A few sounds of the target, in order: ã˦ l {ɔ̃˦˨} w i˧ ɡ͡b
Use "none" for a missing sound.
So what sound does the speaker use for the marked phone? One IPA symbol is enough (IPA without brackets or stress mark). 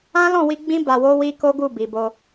ɔ̃˦˨